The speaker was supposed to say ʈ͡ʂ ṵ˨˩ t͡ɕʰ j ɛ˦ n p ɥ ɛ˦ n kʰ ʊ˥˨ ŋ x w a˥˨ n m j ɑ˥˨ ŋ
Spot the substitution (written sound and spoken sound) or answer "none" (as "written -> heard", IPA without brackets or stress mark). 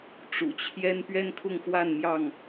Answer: none